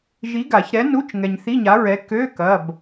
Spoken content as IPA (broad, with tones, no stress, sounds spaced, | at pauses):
ʒ i˨˥ ɡ a˨˩˦ ç ɾ ɛ˨˥ n u˧˥˧ t͡ʃ ŋ ɛ˨ ɲ θ i˧˥˧ ɲ a˨˥ ɹ ɛ˨˥ k ø˧˥˧ k ɐ˧˥˧ b